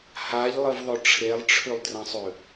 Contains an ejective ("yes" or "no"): no